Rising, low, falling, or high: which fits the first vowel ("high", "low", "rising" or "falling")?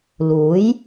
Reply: rising